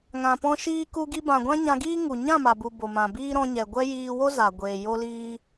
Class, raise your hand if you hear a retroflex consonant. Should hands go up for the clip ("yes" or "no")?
no